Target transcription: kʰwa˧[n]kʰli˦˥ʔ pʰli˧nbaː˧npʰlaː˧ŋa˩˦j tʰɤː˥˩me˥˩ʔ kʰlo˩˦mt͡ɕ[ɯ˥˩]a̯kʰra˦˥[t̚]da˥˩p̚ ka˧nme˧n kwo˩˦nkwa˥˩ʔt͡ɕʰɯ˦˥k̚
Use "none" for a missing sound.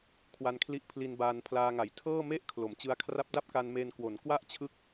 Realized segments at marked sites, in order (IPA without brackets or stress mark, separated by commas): n, ɯ˧, p̚